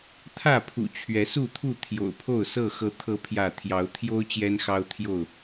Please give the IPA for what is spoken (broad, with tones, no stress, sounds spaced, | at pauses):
t̪ʰ ä˥˨ pʰ ṵ˨˩ t͡ɕʰ ɥ ɛ˨˦ s u˥˨ t̪ʰ u˥˨ t̪ʰ j o̰˨˩ ʊ̯ pʰ o˥˨ ʊ̯ s ɤ˥˨ x ɤ˨˦ t̪ʰ ɤ˨˦ pʰ j ä˥˨ t̪ʰ j ɑ˨˦ ʊ̯ t̪ʰ j o˦ ʊ̯ t͡ɕ j ɛ˦ n x ɑ˦ ʊ̯ t̪ʰ j o˥˨ ʊ̯